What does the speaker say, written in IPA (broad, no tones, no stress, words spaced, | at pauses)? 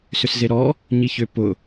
sʏszeɾɔ | ɲiçʏ pʊ